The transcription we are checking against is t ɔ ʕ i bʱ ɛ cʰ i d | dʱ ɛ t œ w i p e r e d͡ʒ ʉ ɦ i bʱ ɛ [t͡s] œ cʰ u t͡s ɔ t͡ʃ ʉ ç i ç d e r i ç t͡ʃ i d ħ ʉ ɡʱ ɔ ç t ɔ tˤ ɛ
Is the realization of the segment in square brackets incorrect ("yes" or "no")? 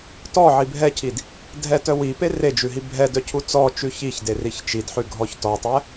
yes